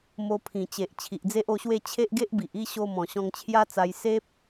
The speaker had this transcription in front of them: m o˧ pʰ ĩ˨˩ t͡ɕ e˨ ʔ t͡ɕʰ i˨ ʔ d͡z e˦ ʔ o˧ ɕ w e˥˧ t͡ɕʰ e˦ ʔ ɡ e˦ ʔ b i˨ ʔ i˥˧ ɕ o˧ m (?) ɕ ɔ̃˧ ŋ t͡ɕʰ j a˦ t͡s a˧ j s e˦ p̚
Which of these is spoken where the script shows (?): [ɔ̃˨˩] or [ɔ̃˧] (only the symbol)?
ɔ̃˨˩